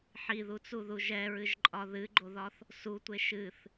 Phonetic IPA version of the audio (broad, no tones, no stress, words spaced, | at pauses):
ħiðut͡suðu ʒɛɹɨʒǃʼɒ ðɨɡ͡ǃoðɒθ | sutʷe ʃɨθ